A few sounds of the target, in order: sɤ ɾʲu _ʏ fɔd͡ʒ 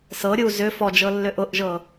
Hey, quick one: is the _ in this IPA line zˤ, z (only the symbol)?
z